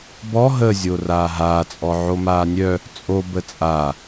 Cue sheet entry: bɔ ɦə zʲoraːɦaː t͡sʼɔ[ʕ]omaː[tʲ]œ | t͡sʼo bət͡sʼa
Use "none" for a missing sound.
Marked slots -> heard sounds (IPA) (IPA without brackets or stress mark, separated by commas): ʕ, nʲ